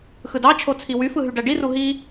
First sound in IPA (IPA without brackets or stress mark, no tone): x